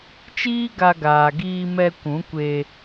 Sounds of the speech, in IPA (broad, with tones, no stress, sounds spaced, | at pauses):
t͡ʃ iː˦ ɡ a˧ ɡ aː˨ ɡ iː˧ m ɛ˧ kʷ ũ˨˦ kʷ e˧